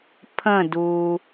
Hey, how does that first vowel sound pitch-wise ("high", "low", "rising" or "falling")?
falling